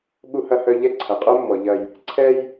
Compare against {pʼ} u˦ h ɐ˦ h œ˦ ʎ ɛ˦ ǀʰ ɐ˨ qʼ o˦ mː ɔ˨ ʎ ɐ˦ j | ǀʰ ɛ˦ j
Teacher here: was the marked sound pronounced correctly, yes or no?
no